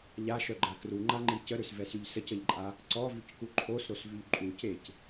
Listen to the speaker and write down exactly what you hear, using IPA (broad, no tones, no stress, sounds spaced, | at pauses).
ʎ a ʃ œ ɡ͡ǃ a k r u ŋ͡ǃ a ŋ͡ǃ i c ə ɾ ø s v ɛ s y ʎ s ə c ə ʎ ǃʼ a | ǀ ɔ v y c k u ǃʰ o s ɾ o s v y ʎ ǃʼ u c e c